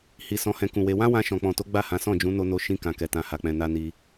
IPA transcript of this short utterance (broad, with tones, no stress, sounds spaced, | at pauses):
h i˨ s ɔ̃˨˦ h ɛ̃˧ k ũ˨ w e˧ w ã˦ w ã˧ ʃ ɔ̃˨ k͡p ɔ̃˨ t o˨˦ ɡ͡b a˦˨ h ã˨˦ s ɔ̃˦˨ d͡ʒ ũ˨˦ n o˧ n o˧ ʃ ĩ˧ k ã˨ k ɛ˨ t ã˨ h a˨ k͡p ɛ̃˨ n a˧ n i˧